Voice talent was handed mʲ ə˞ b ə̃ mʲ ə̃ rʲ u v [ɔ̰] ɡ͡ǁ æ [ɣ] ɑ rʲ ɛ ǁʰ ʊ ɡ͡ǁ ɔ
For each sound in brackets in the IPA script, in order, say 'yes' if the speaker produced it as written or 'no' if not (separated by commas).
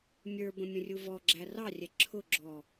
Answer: no, no